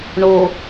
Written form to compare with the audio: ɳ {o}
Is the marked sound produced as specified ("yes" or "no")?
yes